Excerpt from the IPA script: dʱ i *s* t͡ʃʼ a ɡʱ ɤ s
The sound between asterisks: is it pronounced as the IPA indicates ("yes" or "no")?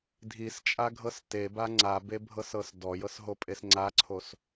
yes